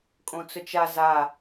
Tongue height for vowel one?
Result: mid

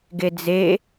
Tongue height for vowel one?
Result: mid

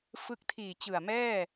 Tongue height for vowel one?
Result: high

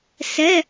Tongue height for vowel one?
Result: mid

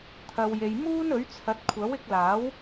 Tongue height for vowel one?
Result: low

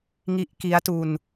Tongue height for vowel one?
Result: high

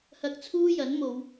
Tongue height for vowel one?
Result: low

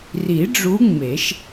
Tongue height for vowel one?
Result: high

